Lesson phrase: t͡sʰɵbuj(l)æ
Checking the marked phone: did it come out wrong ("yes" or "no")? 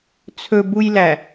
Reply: no